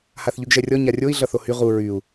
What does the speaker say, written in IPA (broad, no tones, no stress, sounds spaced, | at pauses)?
h a θ ʎ y ɡ ʒ ɛ rʲ ɔ ɲ a rʲ o i̯ ɮ ʌ θ o h y ʁ u ɹ y u̯